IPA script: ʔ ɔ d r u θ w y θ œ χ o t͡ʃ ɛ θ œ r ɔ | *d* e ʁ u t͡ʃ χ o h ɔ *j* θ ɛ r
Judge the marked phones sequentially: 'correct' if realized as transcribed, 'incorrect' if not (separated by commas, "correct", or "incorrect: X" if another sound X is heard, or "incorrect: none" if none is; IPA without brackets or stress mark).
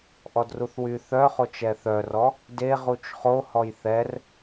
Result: correct, correct